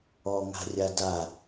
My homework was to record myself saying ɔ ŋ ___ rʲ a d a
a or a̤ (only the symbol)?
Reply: a̤